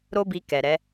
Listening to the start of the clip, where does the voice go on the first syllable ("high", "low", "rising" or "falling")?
high